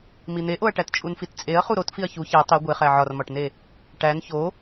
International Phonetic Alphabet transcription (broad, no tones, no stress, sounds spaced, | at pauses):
m i n̪ e ʔ o ɐ̯ ʈ æ t t͡ʃʼ u n f i t t͡sʼ e ɐ̯ χ u ɾ o t f i ɐ̯ ç u ç æ tˤ i ɡʷ e χ æ ʕ ɒ r m ɒ ʈ n e | ʈ æ n ç o